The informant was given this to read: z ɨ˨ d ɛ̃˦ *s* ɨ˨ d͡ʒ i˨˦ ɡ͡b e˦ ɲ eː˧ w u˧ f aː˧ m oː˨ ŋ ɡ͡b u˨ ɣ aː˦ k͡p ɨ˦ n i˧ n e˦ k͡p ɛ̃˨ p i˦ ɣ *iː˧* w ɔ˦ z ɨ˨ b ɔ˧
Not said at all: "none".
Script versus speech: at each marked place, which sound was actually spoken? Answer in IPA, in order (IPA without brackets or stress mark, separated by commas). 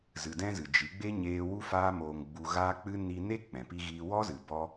z, iː˧